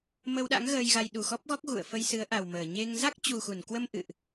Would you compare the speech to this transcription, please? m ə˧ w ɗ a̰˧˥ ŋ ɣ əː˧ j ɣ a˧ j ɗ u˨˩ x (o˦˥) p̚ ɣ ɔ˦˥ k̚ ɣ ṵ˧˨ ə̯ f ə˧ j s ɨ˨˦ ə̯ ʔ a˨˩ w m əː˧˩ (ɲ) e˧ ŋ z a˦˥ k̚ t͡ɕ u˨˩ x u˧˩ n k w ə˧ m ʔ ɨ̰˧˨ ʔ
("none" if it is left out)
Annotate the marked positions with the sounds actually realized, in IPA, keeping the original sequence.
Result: ɔ˦˥, ɲ

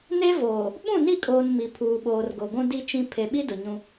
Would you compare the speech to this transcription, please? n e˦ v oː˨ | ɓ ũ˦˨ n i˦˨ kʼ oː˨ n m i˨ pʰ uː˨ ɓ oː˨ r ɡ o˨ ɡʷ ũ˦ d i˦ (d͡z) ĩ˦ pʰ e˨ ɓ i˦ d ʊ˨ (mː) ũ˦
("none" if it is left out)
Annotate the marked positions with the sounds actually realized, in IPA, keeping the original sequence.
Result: t͡ʃ, ɲ

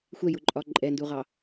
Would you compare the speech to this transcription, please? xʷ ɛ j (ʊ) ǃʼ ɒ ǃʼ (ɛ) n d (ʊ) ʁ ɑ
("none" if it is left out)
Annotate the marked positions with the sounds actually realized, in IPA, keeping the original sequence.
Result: ʊ, ɛ, u

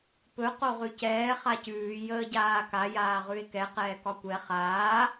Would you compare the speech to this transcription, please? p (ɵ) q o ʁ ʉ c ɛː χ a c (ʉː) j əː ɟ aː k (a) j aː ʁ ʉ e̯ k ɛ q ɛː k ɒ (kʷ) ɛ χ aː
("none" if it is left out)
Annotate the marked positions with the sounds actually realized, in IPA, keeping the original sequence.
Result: ɵ, ʉː, a, kʷ

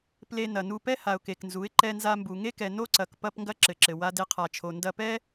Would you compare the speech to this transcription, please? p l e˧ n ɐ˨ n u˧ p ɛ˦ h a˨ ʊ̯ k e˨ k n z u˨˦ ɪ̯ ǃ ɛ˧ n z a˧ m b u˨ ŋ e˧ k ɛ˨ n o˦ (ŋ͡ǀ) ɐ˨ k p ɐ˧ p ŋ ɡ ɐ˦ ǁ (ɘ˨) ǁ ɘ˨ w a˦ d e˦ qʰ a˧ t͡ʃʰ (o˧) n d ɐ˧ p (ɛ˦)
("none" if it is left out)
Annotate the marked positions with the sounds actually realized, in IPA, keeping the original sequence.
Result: ǀ, ɘ˨, o˧, ɛ˦

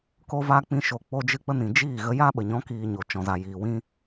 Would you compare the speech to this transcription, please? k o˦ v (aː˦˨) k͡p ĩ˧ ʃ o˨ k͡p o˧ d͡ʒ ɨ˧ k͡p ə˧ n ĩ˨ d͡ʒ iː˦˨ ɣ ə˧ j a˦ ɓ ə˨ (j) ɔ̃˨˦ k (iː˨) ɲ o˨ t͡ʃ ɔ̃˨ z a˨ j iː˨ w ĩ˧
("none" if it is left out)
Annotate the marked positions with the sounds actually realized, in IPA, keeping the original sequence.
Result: aː˦, ɲ, iː˨

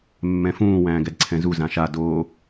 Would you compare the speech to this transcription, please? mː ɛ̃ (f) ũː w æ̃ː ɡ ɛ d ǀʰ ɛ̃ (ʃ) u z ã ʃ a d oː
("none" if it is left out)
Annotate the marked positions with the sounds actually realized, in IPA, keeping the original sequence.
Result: f, z

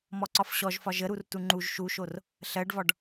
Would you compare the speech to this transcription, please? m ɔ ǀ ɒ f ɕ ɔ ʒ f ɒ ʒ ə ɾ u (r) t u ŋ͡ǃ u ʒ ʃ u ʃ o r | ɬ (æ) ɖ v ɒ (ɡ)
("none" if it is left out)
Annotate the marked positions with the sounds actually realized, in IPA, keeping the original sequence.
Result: r, ɜ, ɖ

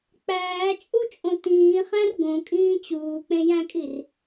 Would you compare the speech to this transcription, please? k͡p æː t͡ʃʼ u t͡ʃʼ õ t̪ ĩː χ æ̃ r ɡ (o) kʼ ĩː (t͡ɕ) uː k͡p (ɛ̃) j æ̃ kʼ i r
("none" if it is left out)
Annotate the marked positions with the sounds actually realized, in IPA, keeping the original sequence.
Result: õ, t͡ɕ, ẽ

